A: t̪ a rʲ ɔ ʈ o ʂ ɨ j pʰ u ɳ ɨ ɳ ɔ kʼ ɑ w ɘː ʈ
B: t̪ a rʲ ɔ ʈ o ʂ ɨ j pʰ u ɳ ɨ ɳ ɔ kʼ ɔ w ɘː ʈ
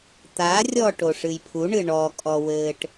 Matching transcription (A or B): B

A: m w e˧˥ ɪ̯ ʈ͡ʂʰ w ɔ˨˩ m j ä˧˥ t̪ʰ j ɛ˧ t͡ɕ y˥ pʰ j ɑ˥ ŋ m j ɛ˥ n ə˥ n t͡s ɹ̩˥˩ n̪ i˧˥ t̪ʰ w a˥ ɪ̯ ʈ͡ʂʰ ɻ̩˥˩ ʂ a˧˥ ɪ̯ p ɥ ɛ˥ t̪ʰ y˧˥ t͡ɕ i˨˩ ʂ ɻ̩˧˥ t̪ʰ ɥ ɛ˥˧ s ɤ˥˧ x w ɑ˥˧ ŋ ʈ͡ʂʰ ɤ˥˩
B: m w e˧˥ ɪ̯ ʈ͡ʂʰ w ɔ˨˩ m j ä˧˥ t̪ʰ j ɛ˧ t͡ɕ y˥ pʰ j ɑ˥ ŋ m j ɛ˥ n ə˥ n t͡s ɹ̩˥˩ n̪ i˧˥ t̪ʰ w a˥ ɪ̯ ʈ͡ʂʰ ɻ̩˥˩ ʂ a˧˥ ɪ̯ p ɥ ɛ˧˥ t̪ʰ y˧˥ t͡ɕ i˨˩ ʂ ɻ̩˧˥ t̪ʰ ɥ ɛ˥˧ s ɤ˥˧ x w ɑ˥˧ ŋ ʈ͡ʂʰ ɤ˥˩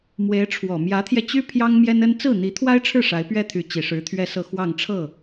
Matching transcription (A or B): A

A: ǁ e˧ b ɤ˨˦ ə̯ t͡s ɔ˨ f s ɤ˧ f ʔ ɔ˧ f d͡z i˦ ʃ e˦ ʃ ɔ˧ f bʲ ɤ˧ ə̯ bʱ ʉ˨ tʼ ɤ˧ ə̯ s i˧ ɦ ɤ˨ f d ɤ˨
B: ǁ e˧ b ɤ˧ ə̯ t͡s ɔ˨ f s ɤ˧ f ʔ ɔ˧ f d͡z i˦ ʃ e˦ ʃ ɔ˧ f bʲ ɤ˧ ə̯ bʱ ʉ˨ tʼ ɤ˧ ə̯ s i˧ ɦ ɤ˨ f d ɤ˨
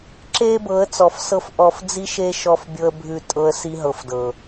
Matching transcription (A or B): A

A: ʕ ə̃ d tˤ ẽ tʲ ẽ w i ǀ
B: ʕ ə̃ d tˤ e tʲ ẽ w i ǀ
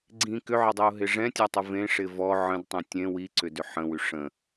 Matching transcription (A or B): A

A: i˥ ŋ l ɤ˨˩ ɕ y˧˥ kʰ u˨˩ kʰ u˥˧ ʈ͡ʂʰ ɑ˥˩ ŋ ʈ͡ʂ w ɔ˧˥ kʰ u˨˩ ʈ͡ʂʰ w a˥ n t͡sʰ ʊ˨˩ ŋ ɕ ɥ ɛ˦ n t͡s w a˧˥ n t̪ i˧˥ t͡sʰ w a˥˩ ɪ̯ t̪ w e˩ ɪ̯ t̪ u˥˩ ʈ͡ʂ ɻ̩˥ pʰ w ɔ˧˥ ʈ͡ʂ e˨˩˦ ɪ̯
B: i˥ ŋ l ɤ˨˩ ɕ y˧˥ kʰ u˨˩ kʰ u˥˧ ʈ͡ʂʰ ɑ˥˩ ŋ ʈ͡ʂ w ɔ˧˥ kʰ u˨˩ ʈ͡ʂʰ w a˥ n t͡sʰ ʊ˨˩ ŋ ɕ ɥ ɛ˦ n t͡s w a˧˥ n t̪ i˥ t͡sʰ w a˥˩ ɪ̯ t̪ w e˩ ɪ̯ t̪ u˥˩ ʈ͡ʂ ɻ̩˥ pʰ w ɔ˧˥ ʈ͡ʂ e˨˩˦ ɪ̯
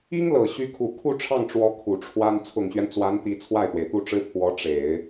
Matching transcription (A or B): A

